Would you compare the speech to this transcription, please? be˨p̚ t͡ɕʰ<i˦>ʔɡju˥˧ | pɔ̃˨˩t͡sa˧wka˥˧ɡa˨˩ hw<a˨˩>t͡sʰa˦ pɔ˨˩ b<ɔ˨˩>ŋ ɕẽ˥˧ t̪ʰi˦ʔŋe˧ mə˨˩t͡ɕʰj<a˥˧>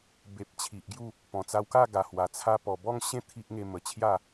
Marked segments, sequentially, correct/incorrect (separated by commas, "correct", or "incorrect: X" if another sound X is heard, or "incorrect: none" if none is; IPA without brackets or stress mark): incorrect: i˨, correct, incorrect: ɔ˥˧, correct